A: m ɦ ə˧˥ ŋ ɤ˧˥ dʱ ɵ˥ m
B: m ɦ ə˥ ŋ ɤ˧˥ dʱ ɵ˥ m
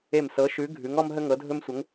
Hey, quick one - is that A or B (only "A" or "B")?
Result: B